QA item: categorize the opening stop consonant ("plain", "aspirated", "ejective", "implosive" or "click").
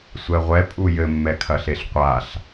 ejective